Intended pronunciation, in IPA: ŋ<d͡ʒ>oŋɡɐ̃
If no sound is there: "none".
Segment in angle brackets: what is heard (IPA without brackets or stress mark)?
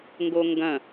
ɡ